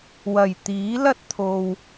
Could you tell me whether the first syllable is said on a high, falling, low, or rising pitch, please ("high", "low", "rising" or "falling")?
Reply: low